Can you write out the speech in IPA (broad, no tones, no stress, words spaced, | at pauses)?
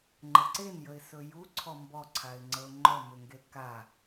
ŋ͡ǃəǀenjəɪ̯sɵ juǀʰɔ mbɔǀʰaɪ̯ŋ͡ǀəʊ̯ ŋ͡ǃɔmʏŋɡe ka